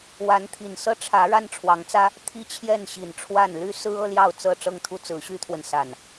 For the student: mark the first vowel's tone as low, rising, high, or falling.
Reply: rising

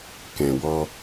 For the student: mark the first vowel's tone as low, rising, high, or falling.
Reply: low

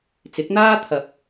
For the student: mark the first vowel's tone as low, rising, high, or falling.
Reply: rising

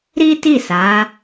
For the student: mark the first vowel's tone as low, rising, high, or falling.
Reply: high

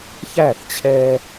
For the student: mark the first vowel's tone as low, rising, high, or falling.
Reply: falling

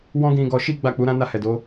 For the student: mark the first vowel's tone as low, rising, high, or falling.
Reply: high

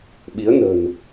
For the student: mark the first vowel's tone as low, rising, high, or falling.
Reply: rising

